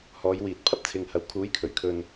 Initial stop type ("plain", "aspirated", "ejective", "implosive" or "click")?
plain